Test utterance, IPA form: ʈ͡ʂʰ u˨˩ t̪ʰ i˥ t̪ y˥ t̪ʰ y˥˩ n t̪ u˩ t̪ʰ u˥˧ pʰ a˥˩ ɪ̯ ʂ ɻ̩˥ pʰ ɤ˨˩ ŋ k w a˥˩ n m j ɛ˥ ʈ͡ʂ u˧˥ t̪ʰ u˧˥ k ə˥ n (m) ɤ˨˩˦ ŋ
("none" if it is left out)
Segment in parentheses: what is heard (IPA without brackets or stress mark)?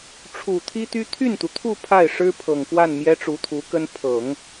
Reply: pʰ